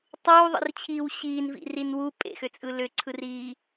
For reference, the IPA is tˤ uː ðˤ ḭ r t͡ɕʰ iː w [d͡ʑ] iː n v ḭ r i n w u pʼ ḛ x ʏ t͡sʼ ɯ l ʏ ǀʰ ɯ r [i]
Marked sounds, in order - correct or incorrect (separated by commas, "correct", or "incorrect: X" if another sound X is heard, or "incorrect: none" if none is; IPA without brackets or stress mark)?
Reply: incorrect: ɕ, incorrect: iː